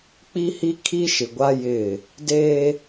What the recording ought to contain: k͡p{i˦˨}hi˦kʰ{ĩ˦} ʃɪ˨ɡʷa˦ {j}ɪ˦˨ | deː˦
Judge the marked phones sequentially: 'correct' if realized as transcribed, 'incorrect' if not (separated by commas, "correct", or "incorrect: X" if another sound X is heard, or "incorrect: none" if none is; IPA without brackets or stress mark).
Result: incorrect: i˦, incorrect: i˦, correct